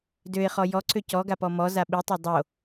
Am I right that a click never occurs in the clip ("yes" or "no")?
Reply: no